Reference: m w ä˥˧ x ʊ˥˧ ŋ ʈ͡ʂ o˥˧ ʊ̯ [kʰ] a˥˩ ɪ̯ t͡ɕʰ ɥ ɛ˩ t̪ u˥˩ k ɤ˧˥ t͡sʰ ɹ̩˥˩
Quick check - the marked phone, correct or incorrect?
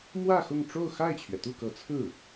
incorrect